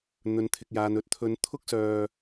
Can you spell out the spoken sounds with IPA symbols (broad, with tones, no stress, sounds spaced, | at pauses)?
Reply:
n̪ ɵ˨ n t̪ʰ ɪ˨ k̚ j aː˨ n ɵ˨˥ t̚ t̪ʰ ɵ˨˧ n t̪ʰ ʊ˥ k̚ s œː˧